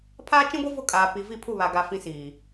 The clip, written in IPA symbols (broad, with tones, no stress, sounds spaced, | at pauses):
pʰ aː˦ t͡ʃ ĩ˦ ɡʷ i˦ v ʊ˦˨ kʼ aː˨ p i˨ v i˦˨ pʰ u˦˨ β a˨ ɡ a˨ f ĩ˦ s iː˨